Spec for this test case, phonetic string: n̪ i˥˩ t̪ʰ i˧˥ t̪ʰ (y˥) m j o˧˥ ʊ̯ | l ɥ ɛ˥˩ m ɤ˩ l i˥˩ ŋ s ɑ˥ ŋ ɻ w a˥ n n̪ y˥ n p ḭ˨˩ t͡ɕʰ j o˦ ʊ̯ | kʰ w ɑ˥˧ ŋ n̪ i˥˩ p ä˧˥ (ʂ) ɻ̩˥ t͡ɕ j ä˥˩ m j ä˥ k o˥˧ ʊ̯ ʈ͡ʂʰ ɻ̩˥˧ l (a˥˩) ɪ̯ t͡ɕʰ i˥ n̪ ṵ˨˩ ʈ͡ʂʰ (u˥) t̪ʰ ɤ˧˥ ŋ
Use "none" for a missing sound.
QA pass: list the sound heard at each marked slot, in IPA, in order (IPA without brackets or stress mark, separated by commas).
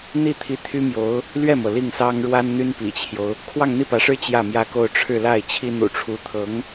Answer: y˥, ʂ, a˥˩, u˧˥